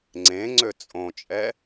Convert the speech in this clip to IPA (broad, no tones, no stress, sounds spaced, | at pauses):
ŋ͡ǀ ẽ ŋ͡ǀ ø t͡sʼ õ t͡ʃʼ ɛ